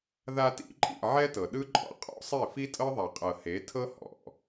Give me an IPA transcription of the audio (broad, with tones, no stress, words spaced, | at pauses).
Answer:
ða˧tḭ˧ǃʼḭ˦˨ ʕɛ˦tɤ˨ɗɯ˦ǃʼɔ̰˧ qʼɔ̰˦sˤe˦˨ fi˦tʼɤ˦ðˤa˨ qʼɤ˨he˨˦tʰɤ˦ hɔ̰˨